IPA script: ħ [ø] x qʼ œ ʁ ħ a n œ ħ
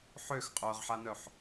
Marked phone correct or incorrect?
correct